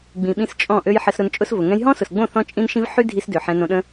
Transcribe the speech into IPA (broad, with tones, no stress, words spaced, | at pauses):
ɡ͡bĩ˨ɓĩ˧s t͡ʃʼɔ̃˦˨ʔø˦j ħə˧sɾʊ˧nt͡ʃʼʊ˦svʊ˨ ŋɛ̃˧jɦɔ̃˦sʊ˨sɡ͡bõ˦˨ θɔ̃˦t͡ʃʼĩ˦nʃĩ˦v ħy˦ dʱi˦sdø˨ ħɛ̃˧nõ˧ɗə̃˦